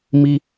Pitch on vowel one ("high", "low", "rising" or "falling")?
high